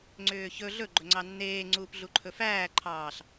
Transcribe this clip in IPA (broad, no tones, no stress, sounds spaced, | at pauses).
ŋ͡ǀ ʏː ç ɵ ɮ ɵ ɡ͡ǃ ɵ ŋ͡ǀ ɑ nː eː ŋ͡ǀ uː p ɮ u ǃʰ ɵ f æː ǃʰ ɑː ɬ